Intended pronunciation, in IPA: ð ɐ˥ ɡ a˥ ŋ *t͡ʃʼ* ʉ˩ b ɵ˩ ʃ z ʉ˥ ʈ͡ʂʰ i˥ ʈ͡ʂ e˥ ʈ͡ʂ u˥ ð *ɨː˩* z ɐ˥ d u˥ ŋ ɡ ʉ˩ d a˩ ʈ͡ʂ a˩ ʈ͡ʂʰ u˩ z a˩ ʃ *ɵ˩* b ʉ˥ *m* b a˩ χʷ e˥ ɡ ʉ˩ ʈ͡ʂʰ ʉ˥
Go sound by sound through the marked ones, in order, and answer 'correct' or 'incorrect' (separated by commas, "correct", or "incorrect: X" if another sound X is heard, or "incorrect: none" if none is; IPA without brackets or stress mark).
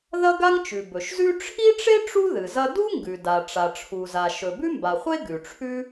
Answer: incorrect: t͡ʃ, incorrect: ɨ˩, correct, correct